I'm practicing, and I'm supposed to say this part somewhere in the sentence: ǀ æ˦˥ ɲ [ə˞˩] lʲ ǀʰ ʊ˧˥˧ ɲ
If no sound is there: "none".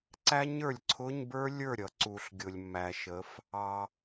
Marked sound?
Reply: ə˞˩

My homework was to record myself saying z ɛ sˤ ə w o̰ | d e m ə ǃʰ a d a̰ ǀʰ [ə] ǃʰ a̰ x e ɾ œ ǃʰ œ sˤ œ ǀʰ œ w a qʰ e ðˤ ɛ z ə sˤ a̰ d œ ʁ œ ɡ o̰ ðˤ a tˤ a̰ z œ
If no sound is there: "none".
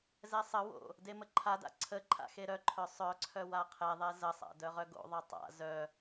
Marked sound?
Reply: ə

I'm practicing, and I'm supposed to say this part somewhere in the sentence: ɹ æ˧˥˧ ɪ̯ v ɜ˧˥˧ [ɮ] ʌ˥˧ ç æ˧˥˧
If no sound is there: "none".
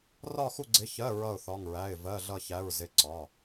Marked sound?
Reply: ɮ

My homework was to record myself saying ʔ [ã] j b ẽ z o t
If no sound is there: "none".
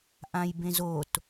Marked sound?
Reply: ã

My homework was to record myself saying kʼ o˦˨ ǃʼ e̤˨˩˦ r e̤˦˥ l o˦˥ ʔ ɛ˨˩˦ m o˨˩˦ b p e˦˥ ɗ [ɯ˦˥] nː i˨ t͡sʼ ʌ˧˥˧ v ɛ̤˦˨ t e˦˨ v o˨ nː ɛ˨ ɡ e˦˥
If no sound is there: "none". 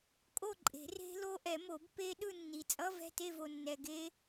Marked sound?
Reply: ɯ˦˨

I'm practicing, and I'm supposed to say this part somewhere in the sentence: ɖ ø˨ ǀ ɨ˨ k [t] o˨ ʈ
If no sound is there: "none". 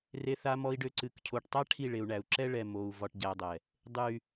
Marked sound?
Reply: cʰ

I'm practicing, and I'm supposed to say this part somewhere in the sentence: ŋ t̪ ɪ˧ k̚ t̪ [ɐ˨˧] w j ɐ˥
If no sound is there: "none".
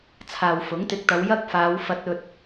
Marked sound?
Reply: ɐ˨˧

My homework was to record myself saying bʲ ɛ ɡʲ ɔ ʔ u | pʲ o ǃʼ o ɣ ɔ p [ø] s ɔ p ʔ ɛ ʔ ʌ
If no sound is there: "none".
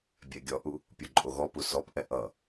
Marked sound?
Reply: u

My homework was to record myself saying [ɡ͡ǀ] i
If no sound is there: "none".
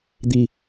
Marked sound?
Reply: d̪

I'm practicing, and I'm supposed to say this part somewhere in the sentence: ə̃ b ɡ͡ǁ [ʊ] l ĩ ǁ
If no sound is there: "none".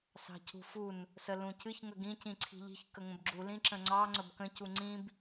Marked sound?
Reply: u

